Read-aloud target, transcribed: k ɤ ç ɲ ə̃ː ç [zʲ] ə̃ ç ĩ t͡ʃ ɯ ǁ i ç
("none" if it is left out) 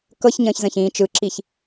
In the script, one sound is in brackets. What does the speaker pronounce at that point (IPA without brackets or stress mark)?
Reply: z